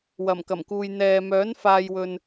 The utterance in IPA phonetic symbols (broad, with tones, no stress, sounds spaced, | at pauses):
w ɐ˨˩ m k ɐ˨˩ m k uː˨ j n̪ ɛː˨ m œː˨˥ n f aː˧ j w ɵ˧ n